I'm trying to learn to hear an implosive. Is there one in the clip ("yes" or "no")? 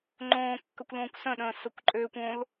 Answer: yes